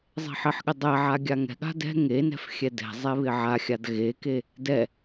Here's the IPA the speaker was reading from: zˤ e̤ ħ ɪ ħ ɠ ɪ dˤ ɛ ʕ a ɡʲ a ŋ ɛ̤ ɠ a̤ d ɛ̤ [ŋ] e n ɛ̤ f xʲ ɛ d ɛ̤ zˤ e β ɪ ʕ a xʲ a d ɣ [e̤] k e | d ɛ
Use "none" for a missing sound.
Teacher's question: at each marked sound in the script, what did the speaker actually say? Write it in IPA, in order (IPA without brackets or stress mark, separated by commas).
ŋ, e